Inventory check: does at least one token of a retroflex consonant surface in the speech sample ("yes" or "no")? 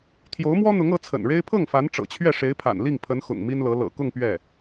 yes